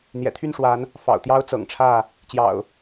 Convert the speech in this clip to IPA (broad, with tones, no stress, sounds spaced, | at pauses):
n̪ j ɛ̰˨˩ t̪ʰ y˥˨ n ʂ w a˨˦ n | f ɑ̰˨˩ ʊ̯ t̪ j ɑ˦ ʊ̯ t͡s ɤ̰˨˩ ŋ ʈ͡ʂʰ ä˥˨ | t͡ɕ j ɑ̰˨˩ ʊ̯